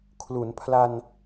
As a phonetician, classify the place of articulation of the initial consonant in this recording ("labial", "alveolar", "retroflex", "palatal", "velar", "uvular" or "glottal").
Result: velar